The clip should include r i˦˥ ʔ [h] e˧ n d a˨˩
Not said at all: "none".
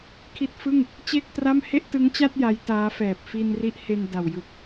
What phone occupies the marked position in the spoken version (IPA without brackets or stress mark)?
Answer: h